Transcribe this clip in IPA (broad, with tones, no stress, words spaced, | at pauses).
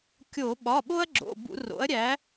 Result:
kʲo˧˩˧ ɓɒ˩˧˩ɓo˦ɐ̯ɡ͡ǁo̰˩˧˩ bṵ˧˩˧ro̰˩˥ɐ̯ɾʲæ˩˥